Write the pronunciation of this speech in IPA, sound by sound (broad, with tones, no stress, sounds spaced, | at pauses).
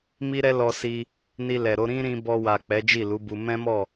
m i˦ ɾ ɛ˦ l ɔ˧ s i˧ | n i˧ l ɛ˨ ɾ o˨˦ ɾ ĩ˦ ɾ ĩ˧ b ɔ˧ w a˨ k͡p ɛ˨˦ d͡ʒ i˦˨ l u˨˦ b u˧ m ɛ̃˦ m ɔ˦˨